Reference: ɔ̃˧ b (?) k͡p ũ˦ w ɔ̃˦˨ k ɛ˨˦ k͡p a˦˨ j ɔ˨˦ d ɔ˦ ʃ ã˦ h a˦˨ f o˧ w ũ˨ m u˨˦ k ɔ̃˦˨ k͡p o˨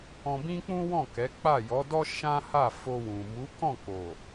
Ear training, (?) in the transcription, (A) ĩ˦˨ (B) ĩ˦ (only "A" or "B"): B